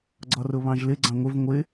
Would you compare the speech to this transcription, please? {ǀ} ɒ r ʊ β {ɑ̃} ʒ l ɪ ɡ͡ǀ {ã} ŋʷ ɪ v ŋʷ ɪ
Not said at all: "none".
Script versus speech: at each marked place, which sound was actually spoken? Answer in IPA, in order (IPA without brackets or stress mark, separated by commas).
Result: ɡ͡ǀ, ɑ̃, ɑ̃